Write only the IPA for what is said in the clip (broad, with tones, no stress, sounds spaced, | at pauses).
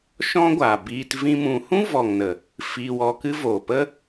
ʃ ɔ̃˦ ɡʷ aː˨ b iː˧ t v ĩ˦ m ũ˧ h ũ˦ v ɔ˨ ŋ n ə˨ | f iː˧ w ɔ˧ k ɨ˦ v oː˨ p ə˦